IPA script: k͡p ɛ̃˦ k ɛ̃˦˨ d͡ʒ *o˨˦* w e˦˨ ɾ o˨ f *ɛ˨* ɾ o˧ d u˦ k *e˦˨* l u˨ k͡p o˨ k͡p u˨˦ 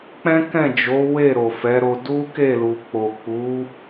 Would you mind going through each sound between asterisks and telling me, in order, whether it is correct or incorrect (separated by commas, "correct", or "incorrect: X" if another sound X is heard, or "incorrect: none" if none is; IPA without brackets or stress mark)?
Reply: correct, incorrect: ɛ˨˦, correct